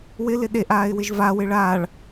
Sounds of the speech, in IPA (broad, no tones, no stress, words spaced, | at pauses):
wɪlɪ ɗeʔaːɪ̯wɪʒ vawɪ ɭaːɭ